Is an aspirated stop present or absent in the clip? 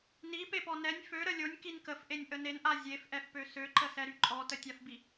absent